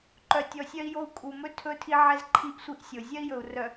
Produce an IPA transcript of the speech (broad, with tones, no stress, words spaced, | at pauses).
ǃœ˨tʲɔ˨sʲœ˦i̯jo˦u̯ kʼu˨mɵ˦ tʰɵ˦tʰi˦ ʕɛ˦zǃʰi˦ʔsʷi˦ʔsʲo˨ zʲœ˦i̯jɵ˨u̯rœ˨